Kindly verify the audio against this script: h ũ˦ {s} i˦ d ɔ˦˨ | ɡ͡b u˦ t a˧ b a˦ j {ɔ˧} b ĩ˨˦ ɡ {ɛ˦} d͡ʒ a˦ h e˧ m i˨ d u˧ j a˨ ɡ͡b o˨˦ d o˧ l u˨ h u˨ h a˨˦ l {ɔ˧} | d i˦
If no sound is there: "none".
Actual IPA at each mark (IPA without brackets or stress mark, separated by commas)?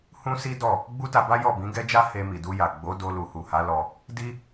s, ɔ˦˨, ɛ˦, ɔ˧